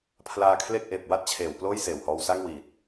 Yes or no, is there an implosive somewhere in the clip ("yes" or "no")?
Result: no